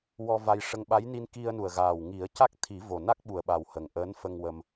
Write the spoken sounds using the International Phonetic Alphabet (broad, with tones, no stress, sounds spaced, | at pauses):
w ɔ˧ v a˧ j ʂ ə˧ ŋ ɓ a˧˥ j n i˧ n k i˧ ə̯ n u˨˩ ə̯ ɣ aː˨˩ w ŋ i˨˩˦ ə̯ c a˦˥ k̚ t̪ʰ i˨˩˦ v o˨˩ n a˦˥ k̚ ɓ u˨˩ ə̯ ɓ a˨˩ w h ə˨˩ ŋ ʔ əː˧˥ n f ə˧ ŋ w ə˧ m